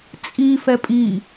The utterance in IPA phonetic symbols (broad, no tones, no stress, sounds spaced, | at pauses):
t͡sʼ i f ɛ pʼ i